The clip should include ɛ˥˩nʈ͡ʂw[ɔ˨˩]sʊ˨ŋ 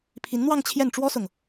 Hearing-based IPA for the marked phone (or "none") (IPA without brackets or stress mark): ɔ˥